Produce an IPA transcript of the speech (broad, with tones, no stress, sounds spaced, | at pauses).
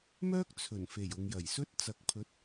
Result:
m œː˥ k̚ t͡sʰ ɵ˨˩ n f e˨˩ j ʊ˨ ŋ j ɐ˨˩ j s ɵ˥ t̚ t͡s ɐ˨ k̚ pʰ ɵ˨˥ t̚